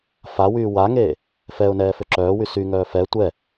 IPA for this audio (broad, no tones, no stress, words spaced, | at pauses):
fawyː waŋeː | fɛʊ̯nɛː føǁœːwy syŋœː fɛ tʷɛ